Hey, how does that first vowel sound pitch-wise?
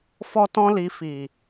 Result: high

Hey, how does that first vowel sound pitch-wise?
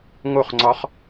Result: falling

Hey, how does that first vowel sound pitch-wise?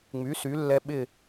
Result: rising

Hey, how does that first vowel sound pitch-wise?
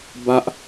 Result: low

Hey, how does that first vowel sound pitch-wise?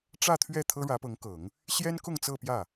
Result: falling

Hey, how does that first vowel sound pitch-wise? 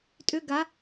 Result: high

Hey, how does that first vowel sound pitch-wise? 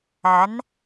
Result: rising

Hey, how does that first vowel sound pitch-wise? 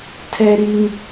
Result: high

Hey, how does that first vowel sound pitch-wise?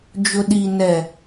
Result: low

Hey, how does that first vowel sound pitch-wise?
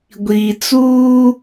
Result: low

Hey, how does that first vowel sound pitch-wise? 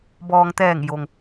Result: low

